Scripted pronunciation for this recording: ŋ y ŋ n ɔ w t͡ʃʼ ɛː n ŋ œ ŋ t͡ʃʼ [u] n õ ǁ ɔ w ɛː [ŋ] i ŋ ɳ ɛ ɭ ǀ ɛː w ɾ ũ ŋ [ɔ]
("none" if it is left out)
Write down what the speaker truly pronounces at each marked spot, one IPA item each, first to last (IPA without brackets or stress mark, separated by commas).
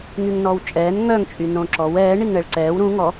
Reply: y, ɳ, ɔ